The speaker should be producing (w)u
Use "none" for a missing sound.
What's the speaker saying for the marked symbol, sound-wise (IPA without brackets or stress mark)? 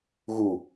ɣ